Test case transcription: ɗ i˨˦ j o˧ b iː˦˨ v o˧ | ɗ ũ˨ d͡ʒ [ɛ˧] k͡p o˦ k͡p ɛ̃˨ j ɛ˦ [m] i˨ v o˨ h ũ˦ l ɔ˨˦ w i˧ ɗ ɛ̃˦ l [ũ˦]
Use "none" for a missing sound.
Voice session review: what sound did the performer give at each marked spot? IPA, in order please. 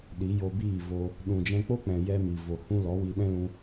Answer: ɛ̃˧, m, ũ˧

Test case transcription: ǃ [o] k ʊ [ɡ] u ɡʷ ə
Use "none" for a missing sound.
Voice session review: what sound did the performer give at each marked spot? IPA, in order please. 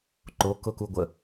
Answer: o, k

